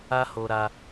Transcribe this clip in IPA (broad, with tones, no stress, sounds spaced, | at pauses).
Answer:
a˦ h o˧ ɾ a˧